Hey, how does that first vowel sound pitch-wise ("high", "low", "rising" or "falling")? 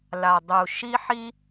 low